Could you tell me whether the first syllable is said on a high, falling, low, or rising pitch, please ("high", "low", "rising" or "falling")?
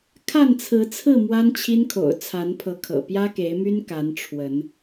falling